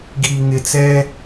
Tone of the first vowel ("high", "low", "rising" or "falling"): low